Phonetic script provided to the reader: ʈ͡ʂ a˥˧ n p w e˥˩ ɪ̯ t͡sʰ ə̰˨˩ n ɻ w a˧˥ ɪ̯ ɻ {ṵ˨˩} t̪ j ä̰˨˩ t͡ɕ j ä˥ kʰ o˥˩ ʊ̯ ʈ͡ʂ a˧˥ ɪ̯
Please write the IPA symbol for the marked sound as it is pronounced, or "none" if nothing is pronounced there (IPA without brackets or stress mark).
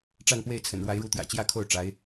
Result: u˧˥